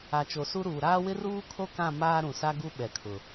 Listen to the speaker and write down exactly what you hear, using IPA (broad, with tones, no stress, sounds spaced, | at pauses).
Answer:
a˨ t͡ʃ o˨ s u˦ ɾ uː˨ ɾ aː˦ w ɪ˦ r uː˦ kʰ o˦ k ã˦˨ m aː˦ ɾ ũ˨ s a˦ ɡ u˦ ɓ ɛ˨ kʰ ʊ˨